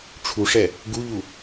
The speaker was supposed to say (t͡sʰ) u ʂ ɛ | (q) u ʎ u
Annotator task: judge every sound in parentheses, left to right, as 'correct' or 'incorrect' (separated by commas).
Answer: incorrect, incorrect